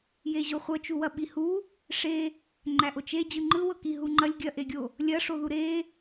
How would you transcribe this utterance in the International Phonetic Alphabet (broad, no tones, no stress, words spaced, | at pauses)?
jeʑoχʷɤt͡ʃu wɐɓihu | ʂe | ŋ͡ǃæʔot͡ʃe d͡ʑɯŋ͡ǃɯwɤ kiɦuŋ͡ǃɐlʲ ɡʲɐʔeɡʲo | lʲɐʂoðu ɾe